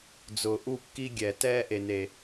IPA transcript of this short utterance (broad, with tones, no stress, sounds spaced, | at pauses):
d͡z ʊː˨ ʔ u˦˨ kː i˦ ɡʲ ɛ˨ t ɛː˦ ʔ e˨ n e˨